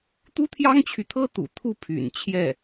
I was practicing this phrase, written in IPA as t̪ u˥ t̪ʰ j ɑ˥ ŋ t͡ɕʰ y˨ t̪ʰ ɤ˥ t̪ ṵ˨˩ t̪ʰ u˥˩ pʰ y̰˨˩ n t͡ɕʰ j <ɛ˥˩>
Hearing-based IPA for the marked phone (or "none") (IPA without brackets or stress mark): ɛ˥˩